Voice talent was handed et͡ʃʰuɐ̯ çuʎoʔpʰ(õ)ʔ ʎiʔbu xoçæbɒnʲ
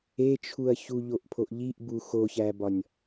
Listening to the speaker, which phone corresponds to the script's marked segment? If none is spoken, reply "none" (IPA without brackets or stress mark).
o